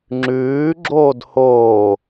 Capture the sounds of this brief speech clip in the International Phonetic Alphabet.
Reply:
ŋ͡ǁ ʉː ɡ͡ǁ oː d h oː

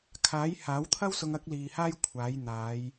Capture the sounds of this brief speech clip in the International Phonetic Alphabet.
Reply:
kʰ aː˨˥ j h aː˨˥ w t̪ʰ ɐ˥ w s ʊ˧ ŋ ɐ˥ k̚ l iː˧ h aː˥ j kʷʰ aː˨˥ j n̪ aː˨˧ j

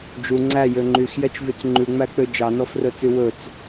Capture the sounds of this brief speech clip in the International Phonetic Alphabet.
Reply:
d͡ʒ u ŋ͡ǀ æ j ø ŋ͡ǃ y x j ɛ t͡ʃ v y t͡s ŋ͡ǃ ʉ ŋ͡m æ k͡p ø d͡ʒ ɑ n ɔ f r ɵ t͡s y w ɵ t͡s

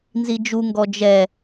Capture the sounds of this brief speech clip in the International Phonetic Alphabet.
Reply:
n z i d͡ʒ u ŋ ɡ ɔ d͡ʒ ɛ

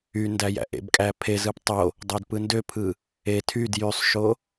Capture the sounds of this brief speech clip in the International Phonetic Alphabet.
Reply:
y n d æ j æ̰ ʔ ḛ b kʼ æ pʰ e z ɯ p tˤ o | dˤ o d p ɯ n d ø pʰ ɯ | e tʰ y d j y sˤ ʃ o

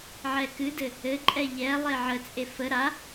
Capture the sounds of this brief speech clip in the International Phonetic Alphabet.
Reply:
ʕ ɛ k ɨ d ɘ | ɘ ǃʼ ɛ ʎ ɛ lˠ e ʕ ə t͡sʼ e f ə ɾ a

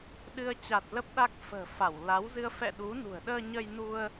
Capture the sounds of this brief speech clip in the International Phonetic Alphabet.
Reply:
ɗ ɨ˧ ə̯ t͡ɕ a˨˩ t̚ l ə˦˥ p̚ ɗ a˦˥ k̚ f ə̤ː˨˩ f a˧˩ w l a˨˦ w z ɨ˧ ə̯ f ɛ̰˧˨ ɗ u˨˦ n ṳ˨˩ ə̯ ɗ əː˧ ɲ ə˧ j n u˧ ə̯

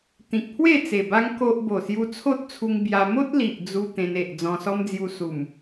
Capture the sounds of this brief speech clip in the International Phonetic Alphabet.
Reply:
t̪ ĩ˨ k̚ pʰ w e˥˧ t͡s e˨˩ b a˦ ŋ k o˦ ʔ b o˨˩ s j u˧ t͡sʰ o˦ t̚ t͡sʰ u˧ ŋ b j a˧ m o˦ t̚ l i˨ ʔ d͡z u˧ t̪ ẽ˧ n e˨ ʔ d͡z ɔ̃˧ s ɔ˦ m d͡z j u˧ s u˨˩ m

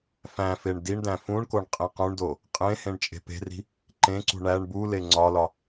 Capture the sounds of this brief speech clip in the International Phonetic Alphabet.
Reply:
f æ̃ f e ɳ d i ɳ d æ̃ f ũ ɳ k o ɳ qʼ ĩ q ũ ɳ d o | qʼ ẽ h ẽ ɳ t͡ʃʼ e̤ p e̤ r i̤ | ǃ ẽ ǀ ṳ ɳ æ ɳ b u l e ŋ͡ǀ ɒ l ɒ

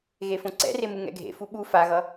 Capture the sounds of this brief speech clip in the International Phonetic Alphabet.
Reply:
ɣ e f õ ǀ ɛ̰ r e m ɯ ŋ ɛ̰ ɡʱ ḛ f u ɓ u f a ɣ ʌ

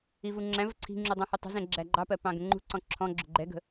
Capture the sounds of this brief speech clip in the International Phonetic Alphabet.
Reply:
i v u ŋ͡ǁ æ̃ v ə ǀʰ i̤ ŋ͡ǁ u dˤ ɛ̃ h i tˤ ə̤ z ɛ̃ ɡ͡ǁ æ ɡ͡ǃ ɑ p ɜ p ɑ̃ ɡ ə̃ ŋ͡ǃ ṳ ǀ ɔ̃ ǁʰ ɔ̃ ɡ͡ǁ ʊ ɡ͡ǃ ɛ ɡ ə̤

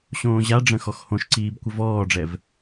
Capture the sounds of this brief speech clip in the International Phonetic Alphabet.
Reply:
ɕ õː ʑ a ɖ͡ʐ ə̃ x ɔ x h õ ʃ ǀ iː b kʷ ə v ɔː ɖ͡ʐ ɛ v

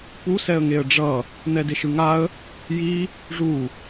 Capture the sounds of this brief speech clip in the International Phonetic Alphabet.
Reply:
p u s ɛ ə̯ ŋ e ə̯ ɖ͡ʐ ʌ | n̪ ɛ d e ʃ ɯ ŋ a ə̯ | j i | ʐ u

